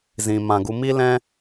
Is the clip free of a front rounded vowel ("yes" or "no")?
yes